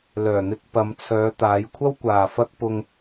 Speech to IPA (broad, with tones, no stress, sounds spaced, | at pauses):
l œː˨˩ n̪ ɪ˧ k̚ p ɐ˨˧ m t͡sʰ œː˨˧ t̪ aː˨˧ j kʷʰ ɐ˥ w kʷ aː˨ f ɐ˥ k̚ p ʊ˧ ŋ